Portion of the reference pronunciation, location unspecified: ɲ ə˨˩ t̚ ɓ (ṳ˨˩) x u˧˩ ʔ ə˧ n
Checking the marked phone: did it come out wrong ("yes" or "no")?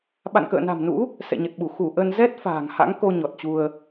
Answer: yes